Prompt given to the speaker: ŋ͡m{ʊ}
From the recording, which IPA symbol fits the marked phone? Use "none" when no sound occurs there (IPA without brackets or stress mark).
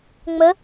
ə